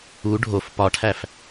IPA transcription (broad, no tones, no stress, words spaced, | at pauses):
u ɖʱof pɒʈʰæf